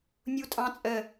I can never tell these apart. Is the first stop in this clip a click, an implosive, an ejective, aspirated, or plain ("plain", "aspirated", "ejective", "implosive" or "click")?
ejective